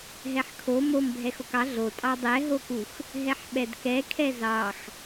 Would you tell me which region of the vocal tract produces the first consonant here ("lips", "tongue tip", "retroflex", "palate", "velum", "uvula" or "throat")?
throat